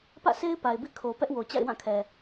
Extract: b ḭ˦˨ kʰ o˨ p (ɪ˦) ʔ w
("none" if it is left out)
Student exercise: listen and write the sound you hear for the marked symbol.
ɛ˦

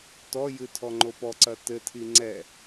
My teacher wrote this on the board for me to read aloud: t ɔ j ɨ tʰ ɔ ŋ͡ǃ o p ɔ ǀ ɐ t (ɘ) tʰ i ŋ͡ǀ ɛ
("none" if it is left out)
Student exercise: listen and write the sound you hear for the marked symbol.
ɘ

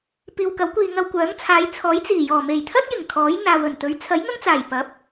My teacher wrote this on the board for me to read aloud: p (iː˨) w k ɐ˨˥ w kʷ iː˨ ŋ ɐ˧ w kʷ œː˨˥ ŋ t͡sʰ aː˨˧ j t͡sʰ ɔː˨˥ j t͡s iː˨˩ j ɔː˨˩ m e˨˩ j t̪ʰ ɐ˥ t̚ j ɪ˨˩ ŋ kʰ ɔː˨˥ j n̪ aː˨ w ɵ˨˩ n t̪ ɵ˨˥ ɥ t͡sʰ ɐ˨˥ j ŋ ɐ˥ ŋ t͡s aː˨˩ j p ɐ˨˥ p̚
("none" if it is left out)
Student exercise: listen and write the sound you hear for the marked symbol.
iː˨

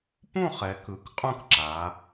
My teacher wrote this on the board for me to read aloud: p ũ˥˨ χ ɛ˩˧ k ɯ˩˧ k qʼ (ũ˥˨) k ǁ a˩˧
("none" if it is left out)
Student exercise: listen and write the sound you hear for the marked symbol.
ũ˥˨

